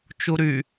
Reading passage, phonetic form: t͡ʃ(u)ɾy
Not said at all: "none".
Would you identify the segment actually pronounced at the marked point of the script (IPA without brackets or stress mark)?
u